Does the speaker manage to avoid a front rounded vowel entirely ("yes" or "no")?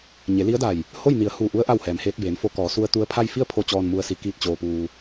yes